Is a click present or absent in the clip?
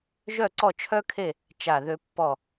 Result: present